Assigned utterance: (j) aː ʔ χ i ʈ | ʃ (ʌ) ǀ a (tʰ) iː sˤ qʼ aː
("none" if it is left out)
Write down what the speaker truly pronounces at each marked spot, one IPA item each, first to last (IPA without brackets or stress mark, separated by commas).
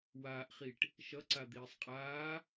w, ʌ, d̪